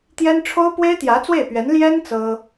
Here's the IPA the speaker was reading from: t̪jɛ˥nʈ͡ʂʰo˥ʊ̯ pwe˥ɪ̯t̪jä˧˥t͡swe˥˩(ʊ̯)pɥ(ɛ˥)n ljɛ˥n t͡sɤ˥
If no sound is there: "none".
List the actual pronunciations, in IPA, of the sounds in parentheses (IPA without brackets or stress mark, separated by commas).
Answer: ɪ̯, ɛ˧˥